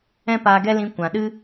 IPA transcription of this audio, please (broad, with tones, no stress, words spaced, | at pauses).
ɛ̃˦paː˧ɡɛ˦lĩ˧ kʷã˨ɗɨ˦